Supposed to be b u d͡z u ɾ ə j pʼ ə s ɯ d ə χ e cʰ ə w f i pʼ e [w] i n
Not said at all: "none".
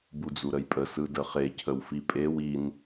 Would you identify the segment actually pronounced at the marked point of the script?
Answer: w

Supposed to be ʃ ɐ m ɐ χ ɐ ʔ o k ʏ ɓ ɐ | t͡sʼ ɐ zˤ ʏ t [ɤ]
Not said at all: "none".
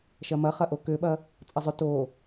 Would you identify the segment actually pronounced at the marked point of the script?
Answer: o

